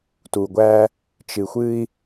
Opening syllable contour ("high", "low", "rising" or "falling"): low